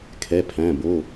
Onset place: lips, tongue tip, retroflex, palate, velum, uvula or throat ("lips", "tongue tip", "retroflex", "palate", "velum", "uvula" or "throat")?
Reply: velum